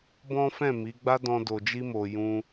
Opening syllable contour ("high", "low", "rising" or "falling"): high